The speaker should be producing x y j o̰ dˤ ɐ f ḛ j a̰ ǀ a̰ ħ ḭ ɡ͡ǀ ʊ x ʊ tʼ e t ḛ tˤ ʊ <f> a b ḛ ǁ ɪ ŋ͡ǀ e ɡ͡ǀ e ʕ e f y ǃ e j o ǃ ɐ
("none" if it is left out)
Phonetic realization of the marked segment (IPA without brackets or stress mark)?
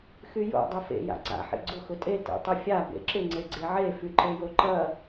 fʲ